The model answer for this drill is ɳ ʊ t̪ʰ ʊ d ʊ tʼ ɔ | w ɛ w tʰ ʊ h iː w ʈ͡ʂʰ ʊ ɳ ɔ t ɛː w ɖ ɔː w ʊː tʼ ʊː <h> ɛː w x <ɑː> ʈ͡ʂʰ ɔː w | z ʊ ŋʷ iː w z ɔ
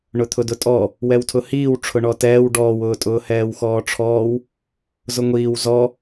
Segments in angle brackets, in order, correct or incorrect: correct, incorrect: ɔː

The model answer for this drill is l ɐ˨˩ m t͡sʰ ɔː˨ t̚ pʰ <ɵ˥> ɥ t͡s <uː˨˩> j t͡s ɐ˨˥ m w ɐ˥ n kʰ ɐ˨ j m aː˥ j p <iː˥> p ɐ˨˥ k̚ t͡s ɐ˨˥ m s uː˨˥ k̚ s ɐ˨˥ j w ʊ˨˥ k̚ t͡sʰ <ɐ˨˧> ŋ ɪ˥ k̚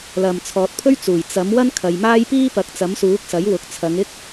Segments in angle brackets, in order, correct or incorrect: correct, correct, correct, correct

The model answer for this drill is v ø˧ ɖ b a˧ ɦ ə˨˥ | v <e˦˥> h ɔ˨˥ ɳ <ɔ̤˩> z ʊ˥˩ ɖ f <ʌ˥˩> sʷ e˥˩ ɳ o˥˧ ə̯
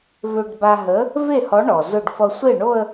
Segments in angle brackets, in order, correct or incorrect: incorrect: e˥˩, incorrect: ɔ˩, incorrect: ʌ˧

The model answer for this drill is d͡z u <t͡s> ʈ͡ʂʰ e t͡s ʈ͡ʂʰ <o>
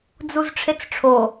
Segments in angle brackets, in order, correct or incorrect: incorrect: z, correct

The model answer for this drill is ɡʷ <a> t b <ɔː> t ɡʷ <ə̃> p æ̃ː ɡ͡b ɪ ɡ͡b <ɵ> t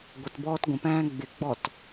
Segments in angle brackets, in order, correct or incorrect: incorrect: ə, correct, correct, incorrect: ɔ

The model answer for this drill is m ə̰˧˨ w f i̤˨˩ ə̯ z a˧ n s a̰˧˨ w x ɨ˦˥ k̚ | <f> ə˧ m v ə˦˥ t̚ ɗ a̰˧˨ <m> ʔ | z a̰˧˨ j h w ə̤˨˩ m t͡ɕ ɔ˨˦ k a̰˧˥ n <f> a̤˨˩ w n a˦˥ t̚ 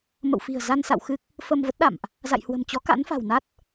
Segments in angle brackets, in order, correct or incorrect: correct, correct, correct

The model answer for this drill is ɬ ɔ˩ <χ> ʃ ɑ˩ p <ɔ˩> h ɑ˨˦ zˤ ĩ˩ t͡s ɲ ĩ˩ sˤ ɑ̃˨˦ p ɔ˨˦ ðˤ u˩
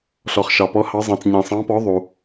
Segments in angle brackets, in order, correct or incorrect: correct, incorrect: ɔ˨˦

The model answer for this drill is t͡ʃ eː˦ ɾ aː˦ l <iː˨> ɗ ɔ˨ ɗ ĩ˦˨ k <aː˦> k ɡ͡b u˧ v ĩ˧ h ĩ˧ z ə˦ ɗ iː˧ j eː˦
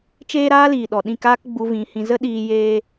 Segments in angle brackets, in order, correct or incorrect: correct, correct

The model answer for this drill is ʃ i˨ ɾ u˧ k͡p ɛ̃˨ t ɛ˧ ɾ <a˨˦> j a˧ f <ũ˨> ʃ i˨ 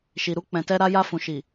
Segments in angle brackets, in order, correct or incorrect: incorrect: a˧, correct

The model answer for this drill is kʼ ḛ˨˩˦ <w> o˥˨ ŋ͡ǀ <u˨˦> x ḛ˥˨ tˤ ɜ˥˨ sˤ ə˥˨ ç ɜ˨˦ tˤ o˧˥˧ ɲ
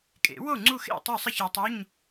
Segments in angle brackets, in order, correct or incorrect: correct, incorrect: u˥˨

